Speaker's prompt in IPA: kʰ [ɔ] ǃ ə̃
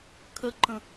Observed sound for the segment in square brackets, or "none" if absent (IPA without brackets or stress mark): ə